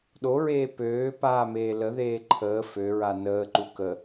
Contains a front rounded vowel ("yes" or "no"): yes